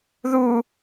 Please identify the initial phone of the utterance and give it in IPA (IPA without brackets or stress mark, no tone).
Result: ð